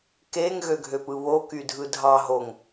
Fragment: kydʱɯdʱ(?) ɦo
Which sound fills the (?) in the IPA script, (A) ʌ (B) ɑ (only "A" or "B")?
B